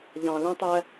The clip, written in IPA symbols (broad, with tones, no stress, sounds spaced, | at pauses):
ʎ ɑ̃˨ l æ̃˦ tˤ æ˦